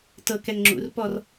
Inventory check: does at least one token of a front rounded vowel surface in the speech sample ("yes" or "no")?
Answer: no